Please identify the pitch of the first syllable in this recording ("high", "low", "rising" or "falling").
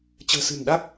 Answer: low